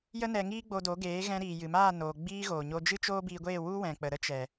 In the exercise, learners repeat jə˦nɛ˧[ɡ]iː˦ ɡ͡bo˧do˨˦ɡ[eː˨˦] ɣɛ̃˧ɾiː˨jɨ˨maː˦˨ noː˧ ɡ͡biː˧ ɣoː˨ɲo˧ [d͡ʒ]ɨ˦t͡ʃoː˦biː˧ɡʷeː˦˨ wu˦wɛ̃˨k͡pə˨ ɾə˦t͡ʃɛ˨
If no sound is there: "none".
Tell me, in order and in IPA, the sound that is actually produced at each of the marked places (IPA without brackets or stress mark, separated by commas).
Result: ŋ, eː˨˦, d͡ʒ